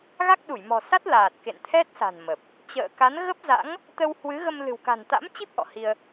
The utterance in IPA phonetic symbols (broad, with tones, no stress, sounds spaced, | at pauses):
ɣ a˦˥ k̚ ɗ u˧˩ j m ɔ̤˨˩ s a˦˥ t̚ l aː˨˩ t̚ k ḛ˧˨ n t̪ʰ ɛ˦˥ t̚ s a̤˨˩ n m ə˨˩ p̚ | t͡ɕ ə̰ː˧˨ k a˨˦ n ɣ ə˦˥ p̚ z a̰˧˥ ŋ | t̪ ə˧ w h w ɨ˨˦ ɣ ə˧ m l ɨ̤˨˩ w k a̤˨˩ n t̪ a̰˧˥ m t͡ɕ i˦˥ p̚ ʔ ɔ̰˧˨ h i˧ ə̯